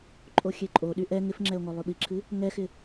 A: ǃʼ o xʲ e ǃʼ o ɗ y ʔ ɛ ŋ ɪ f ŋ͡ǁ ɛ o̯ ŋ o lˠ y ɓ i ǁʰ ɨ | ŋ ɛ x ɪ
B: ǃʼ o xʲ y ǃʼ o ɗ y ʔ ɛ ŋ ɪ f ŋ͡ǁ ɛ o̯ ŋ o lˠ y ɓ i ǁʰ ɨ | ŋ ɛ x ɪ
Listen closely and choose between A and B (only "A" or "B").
A